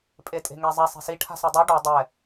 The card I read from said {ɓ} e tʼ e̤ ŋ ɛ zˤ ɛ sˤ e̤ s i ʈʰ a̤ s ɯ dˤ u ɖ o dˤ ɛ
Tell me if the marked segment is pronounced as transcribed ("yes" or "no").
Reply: no